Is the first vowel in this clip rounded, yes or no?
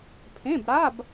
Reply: no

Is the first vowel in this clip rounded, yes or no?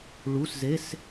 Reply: yes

